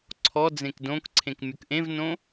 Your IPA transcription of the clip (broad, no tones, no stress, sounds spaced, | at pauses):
ǀʰ ɔ d͡z ẽ k d õ k ǀʰ ẽ k mʲ ɵ k ʔ ẽ v n õ